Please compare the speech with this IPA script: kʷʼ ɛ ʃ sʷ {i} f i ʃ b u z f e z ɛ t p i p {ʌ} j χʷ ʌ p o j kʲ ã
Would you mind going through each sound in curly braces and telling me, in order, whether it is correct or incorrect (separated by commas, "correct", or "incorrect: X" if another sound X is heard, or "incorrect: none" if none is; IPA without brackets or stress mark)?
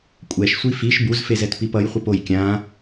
correct, correct